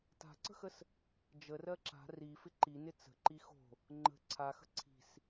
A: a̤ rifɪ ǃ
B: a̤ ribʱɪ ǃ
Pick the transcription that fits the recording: A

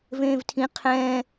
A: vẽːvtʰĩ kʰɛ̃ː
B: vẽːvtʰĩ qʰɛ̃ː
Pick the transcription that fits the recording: B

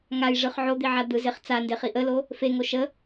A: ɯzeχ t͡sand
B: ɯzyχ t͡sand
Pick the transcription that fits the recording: A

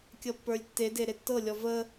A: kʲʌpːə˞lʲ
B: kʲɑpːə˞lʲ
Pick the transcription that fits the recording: A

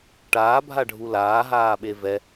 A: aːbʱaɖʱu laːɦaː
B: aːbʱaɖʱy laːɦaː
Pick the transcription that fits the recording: A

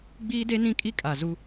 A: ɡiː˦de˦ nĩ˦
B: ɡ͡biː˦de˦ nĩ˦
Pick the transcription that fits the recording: B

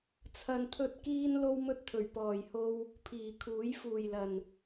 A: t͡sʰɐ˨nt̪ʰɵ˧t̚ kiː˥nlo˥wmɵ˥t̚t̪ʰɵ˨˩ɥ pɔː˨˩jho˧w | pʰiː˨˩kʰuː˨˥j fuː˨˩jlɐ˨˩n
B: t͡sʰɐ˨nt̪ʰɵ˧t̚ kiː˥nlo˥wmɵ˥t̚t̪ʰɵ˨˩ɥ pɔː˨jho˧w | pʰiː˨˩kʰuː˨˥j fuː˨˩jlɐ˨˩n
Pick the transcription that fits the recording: A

